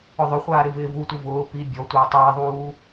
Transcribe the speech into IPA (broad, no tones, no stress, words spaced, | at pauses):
ʊðˤʊχʷaː ɾɪvɪːvutʷɪ vʊː pi bʲɔtʷɪː tˤɪːðˤuː